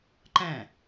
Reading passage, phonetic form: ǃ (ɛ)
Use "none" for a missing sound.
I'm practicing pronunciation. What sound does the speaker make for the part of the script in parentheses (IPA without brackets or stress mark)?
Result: ɛ̃